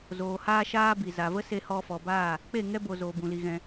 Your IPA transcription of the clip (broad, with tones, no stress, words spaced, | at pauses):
zoː˨ haː˦ʃaː˦bi˨ za˨və˦ se˧hɔ˧fɔ˨baː˦˨ | k͡pe˦˨ŋɛ˦bo˨ zoː˨bũ˨li˨ ɣɛ̃˧